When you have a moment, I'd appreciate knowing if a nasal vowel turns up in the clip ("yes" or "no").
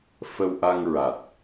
no